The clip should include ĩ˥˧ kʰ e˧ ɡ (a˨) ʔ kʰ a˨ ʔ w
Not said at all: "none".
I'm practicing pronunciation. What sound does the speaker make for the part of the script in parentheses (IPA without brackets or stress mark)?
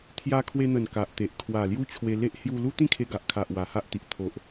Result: a˨